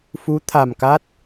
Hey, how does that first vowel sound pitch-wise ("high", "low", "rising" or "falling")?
rising